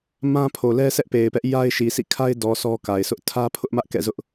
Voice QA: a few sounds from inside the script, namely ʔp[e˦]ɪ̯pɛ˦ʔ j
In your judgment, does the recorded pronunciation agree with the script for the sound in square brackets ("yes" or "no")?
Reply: no